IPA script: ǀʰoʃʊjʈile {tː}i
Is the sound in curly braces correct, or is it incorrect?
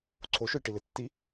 correct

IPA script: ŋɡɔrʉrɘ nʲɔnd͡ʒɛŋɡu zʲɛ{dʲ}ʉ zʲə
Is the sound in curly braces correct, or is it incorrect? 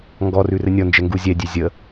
correct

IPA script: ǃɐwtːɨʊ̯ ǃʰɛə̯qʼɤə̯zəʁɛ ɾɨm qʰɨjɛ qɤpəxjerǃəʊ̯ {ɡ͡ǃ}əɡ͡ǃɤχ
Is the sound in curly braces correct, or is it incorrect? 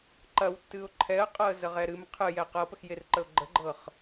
correct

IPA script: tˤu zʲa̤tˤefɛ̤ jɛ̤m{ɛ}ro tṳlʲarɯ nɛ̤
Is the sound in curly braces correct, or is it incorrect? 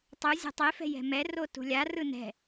correct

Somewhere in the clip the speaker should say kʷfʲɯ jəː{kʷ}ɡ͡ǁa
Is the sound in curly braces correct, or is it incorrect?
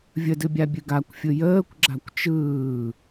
correct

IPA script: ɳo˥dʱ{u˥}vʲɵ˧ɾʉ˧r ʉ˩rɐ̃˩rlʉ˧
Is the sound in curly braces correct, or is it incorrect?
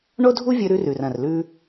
correct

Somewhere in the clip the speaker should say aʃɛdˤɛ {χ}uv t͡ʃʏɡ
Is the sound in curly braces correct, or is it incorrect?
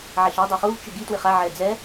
correct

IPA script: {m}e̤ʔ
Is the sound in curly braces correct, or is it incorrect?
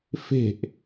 incorrect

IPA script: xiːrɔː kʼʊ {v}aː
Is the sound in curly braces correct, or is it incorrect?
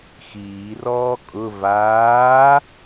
correct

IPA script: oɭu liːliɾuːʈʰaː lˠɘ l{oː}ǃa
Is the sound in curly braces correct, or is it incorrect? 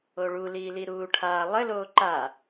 correct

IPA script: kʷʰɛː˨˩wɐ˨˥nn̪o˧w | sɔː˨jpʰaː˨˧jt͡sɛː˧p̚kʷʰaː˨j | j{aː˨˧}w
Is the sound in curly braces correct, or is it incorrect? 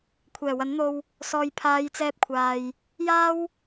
incorrect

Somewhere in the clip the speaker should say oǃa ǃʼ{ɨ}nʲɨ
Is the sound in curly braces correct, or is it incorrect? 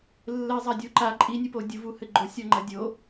incorrect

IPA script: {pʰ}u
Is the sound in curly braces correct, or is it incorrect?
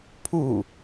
correct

